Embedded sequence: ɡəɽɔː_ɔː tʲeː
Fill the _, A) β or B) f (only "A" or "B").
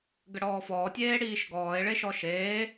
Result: B